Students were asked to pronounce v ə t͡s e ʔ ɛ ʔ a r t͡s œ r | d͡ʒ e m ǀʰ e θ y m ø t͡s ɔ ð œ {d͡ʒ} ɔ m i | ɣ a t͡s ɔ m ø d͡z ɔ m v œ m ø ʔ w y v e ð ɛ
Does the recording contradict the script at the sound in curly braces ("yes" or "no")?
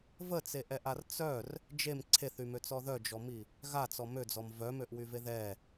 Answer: no